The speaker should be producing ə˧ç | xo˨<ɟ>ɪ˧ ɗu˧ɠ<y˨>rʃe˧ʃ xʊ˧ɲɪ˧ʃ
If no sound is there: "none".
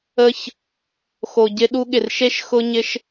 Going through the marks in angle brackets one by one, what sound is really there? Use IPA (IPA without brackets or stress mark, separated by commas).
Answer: ɟ, ɪ˨